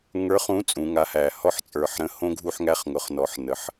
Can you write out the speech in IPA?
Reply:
ŋ ə˞˨˥ χ ũ˨˥ t͡sʼ ũ˩˧ ŋ a˨˥ h æ˨˩ h ɔ˦˨ ħ t͡sʼ ə˞˨˩ ħ ɾ ə̃˨˥ h õ˦˥ ɡʱ u˦˨ ħ ŋ æ˦˨ χ ŋ ʊ˩˧ χ n ɔ˩˧ ħ n ə˩˧ ħ

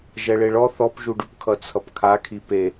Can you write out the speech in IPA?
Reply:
ʒ ɛ ɭ e ɭ ɔ θ ɔ p ʒ u ɖ u p kʰ ʌ t͡sʰ ʌ p kʰ a kʰ i p e

